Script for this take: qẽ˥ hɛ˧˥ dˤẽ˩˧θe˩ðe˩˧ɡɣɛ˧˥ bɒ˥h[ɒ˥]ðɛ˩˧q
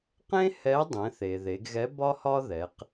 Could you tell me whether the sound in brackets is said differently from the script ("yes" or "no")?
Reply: no